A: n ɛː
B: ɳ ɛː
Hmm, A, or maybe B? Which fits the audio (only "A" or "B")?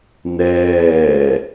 A